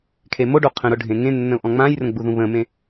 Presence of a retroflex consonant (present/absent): present